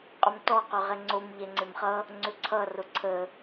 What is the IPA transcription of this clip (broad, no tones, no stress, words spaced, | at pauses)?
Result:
qʼʏmtɔ qʏʁɛŋ͡ǀom ʎɛŋ͡ǀemχʌ | ŋ͡ǀʏǀʰʌ rʊǀʰə